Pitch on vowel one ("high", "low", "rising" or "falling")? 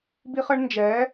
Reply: high